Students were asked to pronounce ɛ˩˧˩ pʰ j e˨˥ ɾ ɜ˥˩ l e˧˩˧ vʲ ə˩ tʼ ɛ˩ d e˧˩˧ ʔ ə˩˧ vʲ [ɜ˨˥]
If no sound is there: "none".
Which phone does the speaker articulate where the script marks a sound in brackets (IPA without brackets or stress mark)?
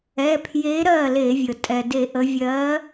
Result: ɜ˨˥